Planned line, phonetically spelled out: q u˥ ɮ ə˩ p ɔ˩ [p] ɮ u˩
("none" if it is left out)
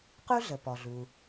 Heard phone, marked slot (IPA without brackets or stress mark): none